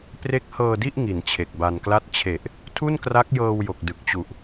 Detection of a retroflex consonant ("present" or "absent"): absent